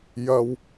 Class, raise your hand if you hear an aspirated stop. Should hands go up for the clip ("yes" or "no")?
no